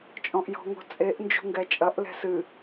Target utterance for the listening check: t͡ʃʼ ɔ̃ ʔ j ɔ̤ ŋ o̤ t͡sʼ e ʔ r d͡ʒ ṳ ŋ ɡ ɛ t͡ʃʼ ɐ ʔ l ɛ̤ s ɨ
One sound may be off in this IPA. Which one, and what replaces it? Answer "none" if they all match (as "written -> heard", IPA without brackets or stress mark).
r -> n